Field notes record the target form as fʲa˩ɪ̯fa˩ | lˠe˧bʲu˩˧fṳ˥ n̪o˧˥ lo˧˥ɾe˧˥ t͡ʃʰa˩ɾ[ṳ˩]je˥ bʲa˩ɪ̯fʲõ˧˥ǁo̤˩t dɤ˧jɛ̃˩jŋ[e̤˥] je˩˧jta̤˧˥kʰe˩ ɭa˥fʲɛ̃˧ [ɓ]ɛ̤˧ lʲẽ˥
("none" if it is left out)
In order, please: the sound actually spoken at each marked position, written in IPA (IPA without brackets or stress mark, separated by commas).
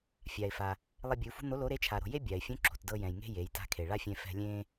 o̤˩, e̤˥, f